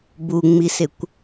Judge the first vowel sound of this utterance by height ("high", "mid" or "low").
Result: high